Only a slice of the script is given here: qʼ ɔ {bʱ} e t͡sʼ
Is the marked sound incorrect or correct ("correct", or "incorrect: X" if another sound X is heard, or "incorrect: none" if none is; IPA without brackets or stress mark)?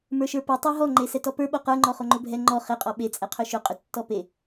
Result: incorrect: ɓ